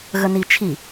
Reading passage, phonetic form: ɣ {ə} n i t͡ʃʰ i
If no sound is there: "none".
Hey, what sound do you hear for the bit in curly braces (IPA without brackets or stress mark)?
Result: ə